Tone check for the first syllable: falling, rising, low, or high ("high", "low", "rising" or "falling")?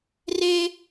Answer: high